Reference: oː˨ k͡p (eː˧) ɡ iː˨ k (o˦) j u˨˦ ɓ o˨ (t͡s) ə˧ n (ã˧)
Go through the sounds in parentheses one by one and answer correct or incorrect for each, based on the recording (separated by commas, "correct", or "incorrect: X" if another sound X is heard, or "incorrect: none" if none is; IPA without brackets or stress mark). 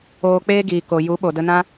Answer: correct, incorrect: o˨, incorrect: d, incorrect: ã˦